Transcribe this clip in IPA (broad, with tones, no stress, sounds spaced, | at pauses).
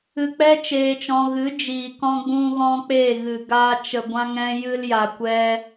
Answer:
ɨ˧ k͡p ɛ˦ t͡ʃ eː˧ t͡ʃ ɔ̃˧ ɣ ɨ˨˦ d͡ʒ iː˨ k ɔ̃˧ ɡ͡b ũ˧ ɣ ɔ̃˧ k͡p eː˦˨ ɣ ɨ˨ ɡ aː˧ t͡ʃ ə˨ ɡʷ ã˧ ŋ ɛ̃˧ j ɨ˧ l j a˨ kʷ ɛ˧